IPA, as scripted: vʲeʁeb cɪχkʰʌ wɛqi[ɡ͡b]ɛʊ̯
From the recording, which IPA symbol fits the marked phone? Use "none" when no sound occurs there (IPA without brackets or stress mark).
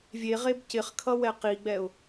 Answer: ɡ͡b